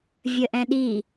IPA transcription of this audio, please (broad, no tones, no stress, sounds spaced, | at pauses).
vʲ ə ʔ ɛ̃ ɗ i